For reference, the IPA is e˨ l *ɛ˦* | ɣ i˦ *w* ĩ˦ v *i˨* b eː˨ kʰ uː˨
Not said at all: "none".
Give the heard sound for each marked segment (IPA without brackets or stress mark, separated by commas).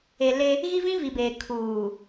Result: e˦, v, i˨